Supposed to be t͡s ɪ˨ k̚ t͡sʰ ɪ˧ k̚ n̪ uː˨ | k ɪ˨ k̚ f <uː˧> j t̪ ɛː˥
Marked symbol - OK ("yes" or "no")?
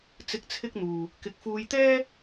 yes